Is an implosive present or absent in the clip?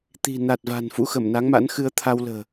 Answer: absent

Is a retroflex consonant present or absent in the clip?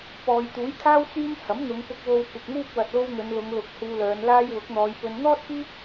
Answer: absent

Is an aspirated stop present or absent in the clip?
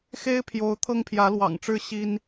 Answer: present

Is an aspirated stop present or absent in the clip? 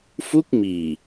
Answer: absent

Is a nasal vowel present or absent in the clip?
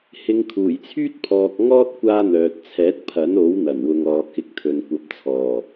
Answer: absent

